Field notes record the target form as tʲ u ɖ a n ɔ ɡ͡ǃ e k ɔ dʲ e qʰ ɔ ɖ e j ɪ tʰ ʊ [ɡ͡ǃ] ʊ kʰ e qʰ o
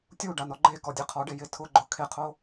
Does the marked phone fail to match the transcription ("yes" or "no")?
no